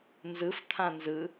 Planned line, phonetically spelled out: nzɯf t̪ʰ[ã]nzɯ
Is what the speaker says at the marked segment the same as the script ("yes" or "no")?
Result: yes